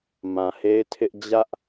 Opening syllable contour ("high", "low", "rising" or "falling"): low